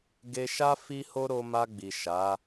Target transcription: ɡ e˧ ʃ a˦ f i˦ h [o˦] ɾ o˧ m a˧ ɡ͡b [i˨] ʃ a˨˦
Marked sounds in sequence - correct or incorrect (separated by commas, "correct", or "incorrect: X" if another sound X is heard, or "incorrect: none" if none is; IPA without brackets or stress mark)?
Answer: correct, correct